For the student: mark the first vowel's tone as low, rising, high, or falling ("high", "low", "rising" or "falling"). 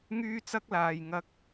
high